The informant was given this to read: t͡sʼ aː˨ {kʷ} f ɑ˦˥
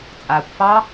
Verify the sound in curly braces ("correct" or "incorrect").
correct